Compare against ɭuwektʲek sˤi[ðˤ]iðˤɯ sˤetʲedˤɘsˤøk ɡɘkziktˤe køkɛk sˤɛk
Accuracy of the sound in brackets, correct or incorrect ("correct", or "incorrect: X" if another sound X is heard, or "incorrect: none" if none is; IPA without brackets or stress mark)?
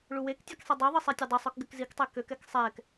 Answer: incorrect: dˤ